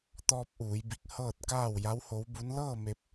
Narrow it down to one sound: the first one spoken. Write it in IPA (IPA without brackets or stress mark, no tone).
t̪